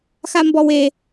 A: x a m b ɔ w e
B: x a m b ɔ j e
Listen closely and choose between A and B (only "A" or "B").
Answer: A